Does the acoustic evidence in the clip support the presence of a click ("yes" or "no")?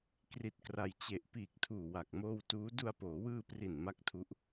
no